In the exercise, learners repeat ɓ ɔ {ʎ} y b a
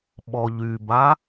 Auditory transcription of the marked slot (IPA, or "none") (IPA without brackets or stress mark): ʎ